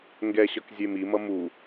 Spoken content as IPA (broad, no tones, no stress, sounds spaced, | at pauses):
ŋ ɡ ɛ ɕ ʌ k zʲ e m i m ʌ m u